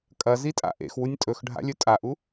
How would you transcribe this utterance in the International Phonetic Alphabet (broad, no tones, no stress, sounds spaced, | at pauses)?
kʼ ɐ z i tʼ a̰ ʔ ḛ x w u nʲ tʼ ɵ x ɖʱ a̰ lʲ ɵ tʼ a ʔ u